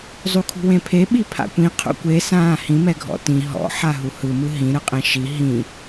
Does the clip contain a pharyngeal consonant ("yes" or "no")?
yes